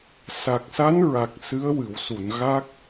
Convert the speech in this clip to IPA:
sa˨˩k̚sa˧˥nɹa˨˩k̚ sɨ˧˥ə̯wɨ˨˩˨wsu˨˩˨nɣa˦˥k̚

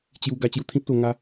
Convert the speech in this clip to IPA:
t͡ɕju˧ ɡa˧t͡ɕju˧t̪ʰĩ˦p̚t̪o˧ ŋa˧

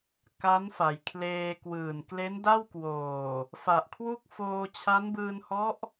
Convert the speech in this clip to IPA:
ka˦˥nfa˩˦jkʰleː˧ kwɯː˨˩nkle˦˥nda˥˩wkwoː˨˩ | fa˨˩ʔkʰwu˥˩k̚ foː˧t͡ɕʰa˦˥nbɯː˧nhɔ˦˥ʔ

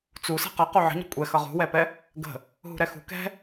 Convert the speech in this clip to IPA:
t͡su sɛ̤qʌ quʕə̤ɲə̤ kʷʼɛ xʌʁṳwɛpɛ | ɡə̤ | ɦṳɾɛxṳ kɛ̤

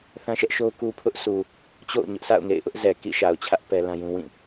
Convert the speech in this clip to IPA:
θã˦ʃɛ˦ʔʃo˦ʊ̯ ku˦pʰʊ˦ʔsʰu˨ | t͡ɕo̰˦˨ʊ̯ɲʊ˦ʔsʰa̰˦˨ʊ̯ŋḛ˦˨ɪ̯ ʔʊ˦ʔzɛ˨ kḭ˦˨ʃa˨ʊ̯t͡ɕʰä˦ʔ pɛ˦lã˦jũ˦ wĩ˦˨

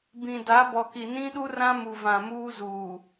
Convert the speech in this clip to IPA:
bĩ˨da˨˦ bɔ˨ki˨ nĩ˦ɗu˦rã˦mu˨ vã˨muː˦zuː˨

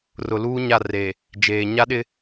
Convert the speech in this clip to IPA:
rʊ˨luː˦ ɲa˦˨ re˨ | d͡ʒeː˨ ɲa˦ɗɪ˦

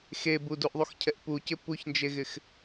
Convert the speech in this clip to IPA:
xeb uduʔðˤuxcʰɛʔ pucɪ puçnd͡ʒeɣɪx

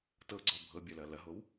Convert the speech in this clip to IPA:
tɤɡ͡ǀɔ bʱɤbʲɐlɐ lɐɦow

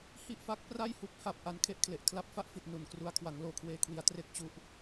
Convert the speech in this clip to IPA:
hi˥˩ʔfa˦˥k̚ pra˥˩jhu˦˥k̚ha˨˩p̚ ʔa˧nkʰe˥˩ʔkʰle˨˩ʔ kʰla˦˥p̚fa˥˩ʔfi˨˩t̚ nu˨˩nkru˧a̯ kʰwa˩˦ŋloː˨˩kʰweː˧kʰwi˩˦a̯ tre˥˩k̚t͡ɕu˥˩ʔ

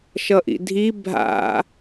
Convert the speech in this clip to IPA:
ʃʌʔḭdʱi bʱa̰

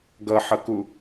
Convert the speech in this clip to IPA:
ɡʌħʌku

